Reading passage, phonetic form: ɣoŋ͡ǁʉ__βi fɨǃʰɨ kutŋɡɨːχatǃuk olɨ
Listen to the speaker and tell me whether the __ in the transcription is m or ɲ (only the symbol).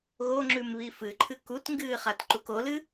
m